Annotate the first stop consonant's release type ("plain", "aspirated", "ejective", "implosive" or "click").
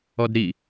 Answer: plain